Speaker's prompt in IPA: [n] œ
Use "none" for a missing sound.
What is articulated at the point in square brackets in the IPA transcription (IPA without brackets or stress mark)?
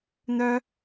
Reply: n